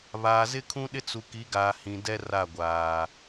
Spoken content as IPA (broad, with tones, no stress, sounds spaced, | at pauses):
β aː˨ z ɪ˦ kʰ ũ˦ ɗ ɪ˦ t͡s u˨ k i˨˦ ɡ aː˨ h ĩ˨ d ɛ˦ r a˦˨ ɡʷ aː˨